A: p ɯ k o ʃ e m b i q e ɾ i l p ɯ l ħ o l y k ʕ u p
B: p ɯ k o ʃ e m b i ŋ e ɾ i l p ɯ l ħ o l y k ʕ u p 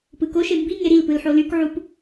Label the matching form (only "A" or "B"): B